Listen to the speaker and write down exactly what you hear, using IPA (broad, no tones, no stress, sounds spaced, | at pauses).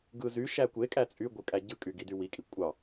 ɡ ɯ z y ʃ æ kʷ e kʼ æ t͡sʼ y ɡʷ ɯ kʼ æ ɟ ɯ kʼ y ɡ i d y w i kʼ i kʷʼ ɑ